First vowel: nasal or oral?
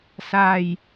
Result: oral